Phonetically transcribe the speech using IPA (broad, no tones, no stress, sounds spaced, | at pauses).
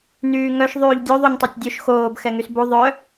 n yː ŋ œ ʃ ðˤ yː ʎ dʲ u ðˤ u ɲ tˤ ɛ tʲ dʲ o ʃ x oː b x ɛ ŋ y s b u ðˤ œ